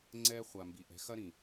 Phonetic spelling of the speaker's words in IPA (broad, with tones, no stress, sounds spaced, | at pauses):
ŋ͡ǀ ɛː˦ χʷ a˨ m b i˨ ʔ ɛ̤˨˦ x ɐ˦ ɾ ĩ˨